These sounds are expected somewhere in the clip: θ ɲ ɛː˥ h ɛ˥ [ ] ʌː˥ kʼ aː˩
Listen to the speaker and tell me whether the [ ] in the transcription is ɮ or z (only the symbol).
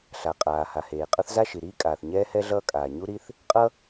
ɮ